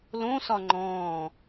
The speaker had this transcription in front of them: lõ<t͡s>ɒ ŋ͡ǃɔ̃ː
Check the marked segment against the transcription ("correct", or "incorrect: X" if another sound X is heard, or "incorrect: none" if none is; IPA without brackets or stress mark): incorrect: s